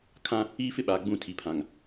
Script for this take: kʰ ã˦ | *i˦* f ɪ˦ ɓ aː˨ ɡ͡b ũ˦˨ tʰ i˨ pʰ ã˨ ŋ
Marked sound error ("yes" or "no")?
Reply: yes